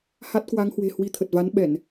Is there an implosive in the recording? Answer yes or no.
yes